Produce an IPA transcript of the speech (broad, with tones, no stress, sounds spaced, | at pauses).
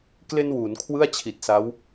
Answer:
k l e˧ n w uː˩˦ n kʰ w ɯ˥˩ a̯ t͡ɕʰ i˨˩ t̚ s a˦˥ w